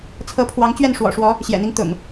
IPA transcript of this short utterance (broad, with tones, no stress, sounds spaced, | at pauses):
t͡sʰ ɤ˨˦ pʰ w ɑ˨˦ ŋ t͡ɕ ɥ ɛ˥˨ n ʂ w ɔ̰˨˩ ʂ w ɔ˨˦ | ɕ j ɛ̰˨˩ n̪ i˦ ŋ t̪ ʊ̰˨˩ ŋ